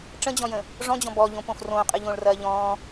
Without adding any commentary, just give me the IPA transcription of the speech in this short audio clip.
ʈ͡ʂə̃d͡ʑɔ̃jə̃ | ʐɔ̃d͡ʑɔ̃ bɔʎõpõf rõːqʼɨʎõːɭrɐː ʎɔ̃ː

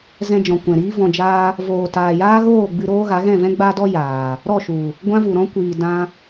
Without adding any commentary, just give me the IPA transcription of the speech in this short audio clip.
zɛ̃˧d͡ʒɔ̃˨ kʷɛ̃˨ɾiː˦vɔ̃˧ d͡ʒaː˧ | voː˨ taː˨jaː˦ɣoː˦˨ ɡ͡bɨ˧ɾoː˦ ɣa˨˦ɣɛ̃˦˨vɛ̃˦ ɡ͡ba˦dɔ˦ jaː˨ | ɾɔ˦˨ʃu˨ | ɡʷã˦vu˨ɾɔ̃˦ kʷiː˨dã˧

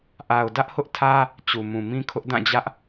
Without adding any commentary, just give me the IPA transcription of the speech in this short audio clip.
ʔa˨ʊ̯dä˦ʔhʊ˦ʔtʰä˦ | t͡ɕu˨mũ˨mĩ˦kʰʊ˦ʔ dã˦˨d͡ʑä˦ʔ

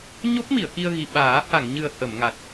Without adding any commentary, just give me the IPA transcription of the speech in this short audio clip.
ɲo˦˥p̚mi˨˩˨ə̯ki˧ə̯ɣi˨˩ ɓaː˨˩˦ ha˨˩˨ŋɲɨ˨˩ə̯ hə˨˩˨mŋa˨˩t̚

